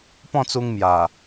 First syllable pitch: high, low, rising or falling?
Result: falling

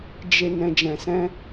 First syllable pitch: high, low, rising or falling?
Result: low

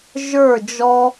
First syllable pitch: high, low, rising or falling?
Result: falling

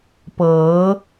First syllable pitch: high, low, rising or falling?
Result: rising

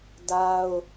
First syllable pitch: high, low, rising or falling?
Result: high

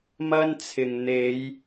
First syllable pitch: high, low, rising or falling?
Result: high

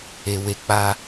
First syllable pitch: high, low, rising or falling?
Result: low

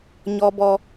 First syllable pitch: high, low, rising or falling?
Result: high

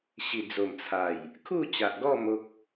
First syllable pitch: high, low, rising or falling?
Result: low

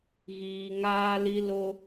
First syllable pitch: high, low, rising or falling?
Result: low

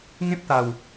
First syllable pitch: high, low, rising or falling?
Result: high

